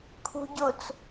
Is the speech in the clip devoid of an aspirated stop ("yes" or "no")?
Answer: no